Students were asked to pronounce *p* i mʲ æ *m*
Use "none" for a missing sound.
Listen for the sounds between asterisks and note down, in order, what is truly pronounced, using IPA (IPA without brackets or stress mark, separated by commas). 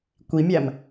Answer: kʷ, m